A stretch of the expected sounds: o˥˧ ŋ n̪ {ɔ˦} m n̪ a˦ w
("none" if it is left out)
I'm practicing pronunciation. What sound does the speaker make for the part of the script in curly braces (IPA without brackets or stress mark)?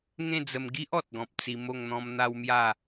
ɔ̃˦